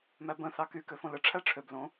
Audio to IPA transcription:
m æ b ə̃ θ ɑ k y k ø f õ l ə ʈ͡ʂʰ æ ʈ͡ʂʰ ø b l õ

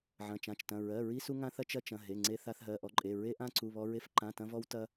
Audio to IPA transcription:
ʕ ɐ̃˩˧˩ t͡ʃ ã˩˧˩ t͡ʃ t ɐ̃˩˧˩ ɹ ɜ˩˧˩ ɹ i˧ s u˧ ŋ ã˧ θ ɐ˧ t͡ʃ ɐ˧ t͡ʃ ɐ̃˩˧˩ ɦ e˩˧˩ ŋ͡ǀ e˧ θ a˧ θ ɦ ɜ˩˧˩ ʔ ɔ˧ ǃʼ e˩˧˩ ɹ e˧ ʔ ã˧ ǀ u˩˧˩ β ɔ˧ ɹ e˧ f ǃ ã˩˧˩ t ɐ̃˧ v ɔ˧ w t ɐ˧

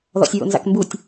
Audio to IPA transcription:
ð ɔ̰ sʲ ɹ o̰ n z a̰ k m b u tʲ

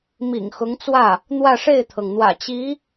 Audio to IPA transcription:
m ḭ˨˩ ŋ x ʊ˧˥ ŋ t͡s w ä˥˩ | n̪ w ä˥˧ ʂ e˥˩ ɪ̯ t̪ʰ ɤ˩ ŋ n̪ w ä̰˨˩ t͡ɕ i˧˥

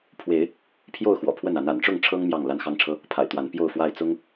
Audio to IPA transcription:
pʰ w e˨˦ ɪ̯ | pʰ j o˥˨ ʊ̯ x w ɔ̰˨˩ pʰ w ə˥˨ n a˨˦ n a̰˨˩ n ʈ͡ʂ ʊ˥˨ ŋ ʈ͡ʂʰ ɤ˦ ŋ m j ɑ˥˨ ŋ l a˦ n x ɑ˦ ŋ ʈ͡ʂʰ ɤ˦ | pʰ a̰˨˩ ɪ̯ t̪ w a˨˦ n p j o˥˨ ʊ̯ f w a˥˨ ɪ̯ t͡s ʊ˦ ŋ

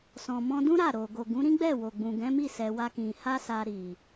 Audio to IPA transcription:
s ɔ̃˨ m ɔ̃˧ d ũ˦ ɾ a˦˨ ɾ o˨ ɡ o˨ ɡ ũ˨˦ ɾ ĩ˦ ɡ͡b ɛ˦˨ w o˨ ɡ͡b ũ˨ ɡ ɛ̃˨˦ m i˦˨ s ɛ˧ w a˦ k ĩ˧ h a˦ s a˧ ɾ i˨

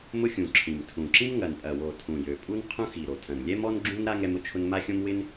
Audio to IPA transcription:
m ʊ˥ xʲ ũ˨˩ ǁʰ ĩ˨˩ m tʰ ũ˨˩ ǁ ĩ˥ m ŋ ɐ˨˩ n pʼ ɐ˨˩ w o˨˩ tʰ ũ˨˩ j ø˨˩ pʼ u˥ n qʰ ũ˥ x i˨˩ ɾ o˨˩ tʰ ɐ̃˨˩ n lʲ ɛ˥ m ɔ˥ n ɡ͡ǁ ũ˥ n ɾ a˥ ŋ ɛ˥ m ʊ˥ t͡ʃʰ ʊ˥ n m a˥ xʲ õ˥ m w ɪ˥ n

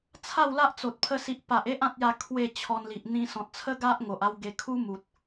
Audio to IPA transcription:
t͡sʰ a˥˧ w l a˦ ʔ t͡s o˨ t̚ pʰ ə˧ s i˨ ʔ p a˨ ʔ e˦ ʔ ã˦ t̚ j a˥˧ kʰ w e˥˧ t͡ɕʰ ɔ˧ n l i˨ ʔ n̪ ĩ˦ s ɔ̃˨ t̚ t͡sʰ ə˦ ɡ a˦ ʔ ŋ o˨ ʔ a˦ w ɡ e˧ kʰ u˦ m u˨ t̚

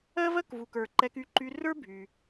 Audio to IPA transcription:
ɜ˥ v ɜ˥ k v u˩ k ə˞˩ ǃ ɛ˧ k y˧ ǃ y˧ r ə˞˥ bʱ y˩

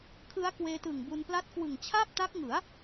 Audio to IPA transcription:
kʰ ɯ˦˥ a̯ k w eː˧ t ɯ˨˩ ŋ b u˧ n p l a˦˥ t̚ k w ɯ˨˩ ŋ t͡ɕʰ a˥˩ p̚ t a˦˥ k̚ ŋ ɯ˩˦ a̯

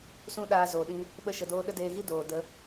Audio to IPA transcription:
s ũ˦ ɗ aː˧ z oː˨ ɗ ĩ˧ | ɓ ə˧ ʃ ə˨ d oː˧ ɗ ə˦ d eː˧ ɣ i˦ d oː˨ d ə˨˦

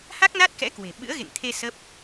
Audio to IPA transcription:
h a˦˥ k̚ n a˦˥ t̚ k ɛ̰˧˥ k w e̤˨˩ ɓ ɨ̰˧˥ ə̯ ɣ ḛ˧˨ ŋ t̪ʰ e˧ s ə˦˥ p̚

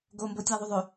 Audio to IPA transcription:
ɡ o m b o tʲ æ ðˤ u ðˤ ø

